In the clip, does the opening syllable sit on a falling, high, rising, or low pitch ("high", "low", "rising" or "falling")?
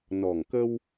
low